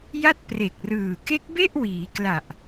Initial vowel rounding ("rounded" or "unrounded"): unrounded